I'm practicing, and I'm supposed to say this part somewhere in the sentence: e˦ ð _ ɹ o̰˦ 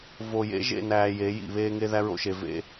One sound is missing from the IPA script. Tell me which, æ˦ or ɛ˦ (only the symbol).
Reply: æ˦